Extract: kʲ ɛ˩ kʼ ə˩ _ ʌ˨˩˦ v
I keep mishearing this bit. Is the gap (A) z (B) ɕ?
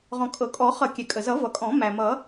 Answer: A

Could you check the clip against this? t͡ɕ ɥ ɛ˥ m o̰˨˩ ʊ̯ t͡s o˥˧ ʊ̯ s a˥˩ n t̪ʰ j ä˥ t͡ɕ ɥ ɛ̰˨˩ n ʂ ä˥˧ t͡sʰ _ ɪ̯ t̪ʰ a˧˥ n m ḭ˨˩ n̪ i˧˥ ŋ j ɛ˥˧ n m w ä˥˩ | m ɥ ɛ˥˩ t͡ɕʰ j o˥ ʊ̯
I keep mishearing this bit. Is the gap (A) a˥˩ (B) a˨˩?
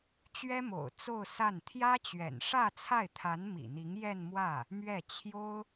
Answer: A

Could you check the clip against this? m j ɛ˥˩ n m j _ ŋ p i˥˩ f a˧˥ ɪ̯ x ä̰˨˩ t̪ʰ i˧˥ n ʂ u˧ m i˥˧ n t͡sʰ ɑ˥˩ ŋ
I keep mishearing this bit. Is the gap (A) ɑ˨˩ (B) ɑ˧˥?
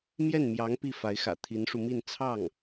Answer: B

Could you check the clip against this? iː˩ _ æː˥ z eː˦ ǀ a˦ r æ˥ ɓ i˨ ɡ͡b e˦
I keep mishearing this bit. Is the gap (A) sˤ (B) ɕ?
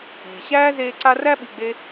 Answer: B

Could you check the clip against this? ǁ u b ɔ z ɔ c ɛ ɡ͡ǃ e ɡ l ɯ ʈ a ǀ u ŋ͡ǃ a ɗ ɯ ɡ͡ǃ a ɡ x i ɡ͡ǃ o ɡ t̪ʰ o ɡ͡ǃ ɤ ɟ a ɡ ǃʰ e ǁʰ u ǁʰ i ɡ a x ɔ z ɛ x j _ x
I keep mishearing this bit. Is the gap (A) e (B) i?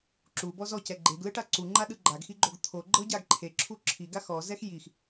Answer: B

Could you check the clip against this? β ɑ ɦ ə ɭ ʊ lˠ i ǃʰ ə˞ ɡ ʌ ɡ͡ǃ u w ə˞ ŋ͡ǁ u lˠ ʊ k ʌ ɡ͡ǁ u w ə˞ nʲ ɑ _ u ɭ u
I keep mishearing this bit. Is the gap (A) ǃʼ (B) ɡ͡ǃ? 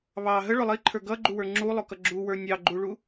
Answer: B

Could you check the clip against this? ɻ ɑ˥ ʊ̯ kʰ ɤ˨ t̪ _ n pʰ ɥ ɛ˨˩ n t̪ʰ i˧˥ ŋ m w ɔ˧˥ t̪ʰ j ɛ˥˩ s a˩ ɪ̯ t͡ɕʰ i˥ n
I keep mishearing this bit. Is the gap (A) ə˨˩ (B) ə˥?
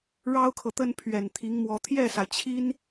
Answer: B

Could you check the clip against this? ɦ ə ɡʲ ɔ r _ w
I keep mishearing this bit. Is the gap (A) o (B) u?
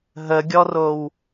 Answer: A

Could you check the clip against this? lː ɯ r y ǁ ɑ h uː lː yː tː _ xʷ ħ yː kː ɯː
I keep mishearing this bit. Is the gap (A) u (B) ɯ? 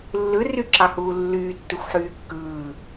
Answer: A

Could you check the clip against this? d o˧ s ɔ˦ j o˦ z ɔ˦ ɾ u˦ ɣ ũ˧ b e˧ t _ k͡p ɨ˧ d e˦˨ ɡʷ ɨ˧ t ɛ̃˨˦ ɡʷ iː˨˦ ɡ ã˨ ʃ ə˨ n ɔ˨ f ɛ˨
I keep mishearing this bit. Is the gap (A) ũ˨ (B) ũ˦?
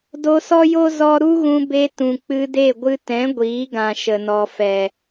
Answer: A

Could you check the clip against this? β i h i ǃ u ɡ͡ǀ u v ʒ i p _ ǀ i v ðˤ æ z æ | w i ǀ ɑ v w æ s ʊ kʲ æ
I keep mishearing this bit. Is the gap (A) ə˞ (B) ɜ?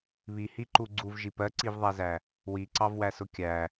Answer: B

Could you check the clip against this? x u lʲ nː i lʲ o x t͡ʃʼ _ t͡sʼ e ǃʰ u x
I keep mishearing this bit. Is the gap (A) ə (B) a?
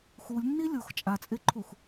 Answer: B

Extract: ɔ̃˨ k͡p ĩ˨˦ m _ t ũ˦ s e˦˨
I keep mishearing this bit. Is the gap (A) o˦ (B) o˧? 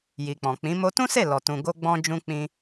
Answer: B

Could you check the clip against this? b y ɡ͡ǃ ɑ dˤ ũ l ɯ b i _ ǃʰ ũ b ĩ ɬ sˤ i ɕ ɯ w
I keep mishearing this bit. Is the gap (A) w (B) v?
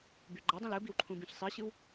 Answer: A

